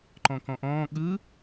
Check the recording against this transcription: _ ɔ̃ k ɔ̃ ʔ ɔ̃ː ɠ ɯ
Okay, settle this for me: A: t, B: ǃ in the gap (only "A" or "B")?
B